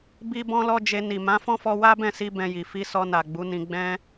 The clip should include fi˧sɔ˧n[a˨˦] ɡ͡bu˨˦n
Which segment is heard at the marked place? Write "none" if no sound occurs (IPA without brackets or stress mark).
a˨